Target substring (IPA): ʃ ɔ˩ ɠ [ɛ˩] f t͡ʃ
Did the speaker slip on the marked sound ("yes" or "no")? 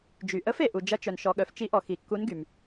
yes